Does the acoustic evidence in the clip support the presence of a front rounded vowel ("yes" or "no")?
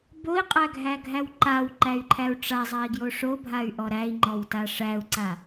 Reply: yes